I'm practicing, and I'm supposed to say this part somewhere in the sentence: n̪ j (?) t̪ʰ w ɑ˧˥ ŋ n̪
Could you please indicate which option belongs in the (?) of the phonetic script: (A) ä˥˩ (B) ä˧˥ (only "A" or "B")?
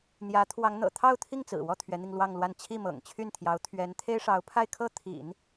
B